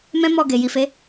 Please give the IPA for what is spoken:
mɛ̃˦mɔ˦˨ ɡe˨ji˨fe˨˦

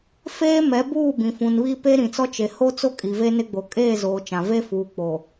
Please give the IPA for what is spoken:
feː˦mɛ˨˦buː˦˨ bĩ˨fũ˨nβiː˦ pe˦ɾĩ˨t͡sɔ˦ t͡ʃe˨ ho˦t͡so˦ kʼi˨ve˦nɪ˦ ɡ͡bo˨kʼeː˦˨zoː˨ t͡ʃã˨ ve˦fuː˨ k͡po˨

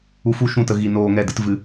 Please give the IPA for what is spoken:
u˧fu˦ʃũ˦˨tə˧ ɣi˧noː˧ŋɛ˦˨ dɨ˦tvɨ˦

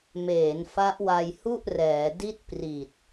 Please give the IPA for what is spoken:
meː˩˦nfa˦˥ʔwa˧jhu˥˩ʔ rɛː˩˦ di˥˩t̚pri˨˩t̚

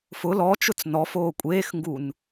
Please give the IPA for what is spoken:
fʊ lɔt͡ʃʊt͡s nɔfoː kʷʼeːxŋɡun

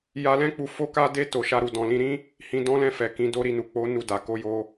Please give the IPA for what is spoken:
ja˧lɛ̃˦k͡pu˧ fo˦ka˦de˦ to˧ʃa˦ɾu˧ dɔ̃˨lĩ˧ɾĩ˦ | hĩ˧dɔ̃˦lɛ̃˦˨fɛ˨ kĩ˨˦do˦ ɾi˦˨nu˨ k͡po˨˦ nu˦˨da˨ ko˨˦jo˧

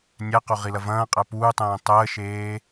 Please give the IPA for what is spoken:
nʲæqo ʁilɐvɐ̃ːqʼæ puːtˤẽː tˤəːʃeː

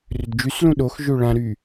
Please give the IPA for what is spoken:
rʏdd͡ʒyslũ ɗoxʒø ɭãɾy

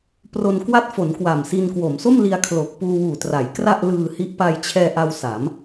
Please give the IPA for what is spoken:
pro˧nkwa˥˩t̚fo˩˦n kwa˨˩msi˧n kwo˩˦mso˥˩mli˧a̯ kʰlo˨˩k̚ puː˧wuː˨˩tra˩˦j kra˥˩ʔlɯː˧hi˦˥ʔ pa˧jt͡ɕʰɛː˧ʔa˧w sa˩˦m

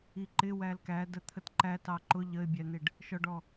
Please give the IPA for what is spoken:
iǃɪ wælkæ dət̪ʰətǃæ tɑǃʊ ʎəɪ̯bʲæn̪ɪɖ | ʃɔɖɔ

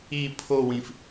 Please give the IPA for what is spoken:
i pʰowĩf

